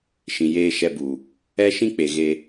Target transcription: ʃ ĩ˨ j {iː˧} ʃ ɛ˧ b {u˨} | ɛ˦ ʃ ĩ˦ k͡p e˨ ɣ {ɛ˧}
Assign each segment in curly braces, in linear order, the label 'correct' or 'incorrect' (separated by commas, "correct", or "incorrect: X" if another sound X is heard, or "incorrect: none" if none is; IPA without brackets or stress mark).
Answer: incorrect: eː˧, correct, incorrect: e˧